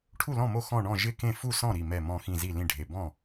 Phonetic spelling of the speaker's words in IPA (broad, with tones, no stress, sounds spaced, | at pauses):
ʈʰ u˥˩ l ɔ̃˥˩ m o˥˩ x ɔ̃˥˩ ɳ ɔ̃˥˩ ʒ ɪ˥˩ k ẽ˥˩ f u˥˩ s ɔ̃˥˩ ɾ i˧˩ m ɛ˧˩ m ɔ̃˧˩ x ĩ˧˩ z i˥˩ l ĩ˥˩ ɖʱ e˧˩ b ɔ̃˥˩